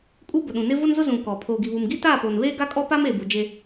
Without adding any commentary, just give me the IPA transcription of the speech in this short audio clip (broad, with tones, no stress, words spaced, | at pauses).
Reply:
kʼu˦bʊ˨ɗũ˨nɪ˦ vʊ˦nzʊ˦ zũ˨ kɔ˨ pʰoː˨ɡi˨βu˨m ɡi˦taː˦˨poː˨n βeː˦ɡa˦kʼɔ˦pa˦m eː˨bu˨ d͡ʒe˦